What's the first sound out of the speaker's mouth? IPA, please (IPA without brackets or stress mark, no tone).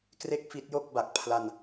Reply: k